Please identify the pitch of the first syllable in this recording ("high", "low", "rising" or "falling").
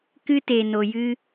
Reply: high